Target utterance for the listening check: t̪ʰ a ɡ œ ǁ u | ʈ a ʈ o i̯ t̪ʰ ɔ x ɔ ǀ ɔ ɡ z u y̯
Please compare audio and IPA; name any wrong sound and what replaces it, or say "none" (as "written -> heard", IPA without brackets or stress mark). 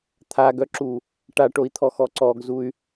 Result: none